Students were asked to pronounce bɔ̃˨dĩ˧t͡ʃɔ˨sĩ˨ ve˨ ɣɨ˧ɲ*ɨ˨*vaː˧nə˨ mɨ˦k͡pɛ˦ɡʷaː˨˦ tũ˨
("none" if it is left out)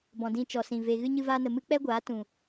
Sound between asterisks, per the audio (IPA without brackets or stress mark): ɨ˧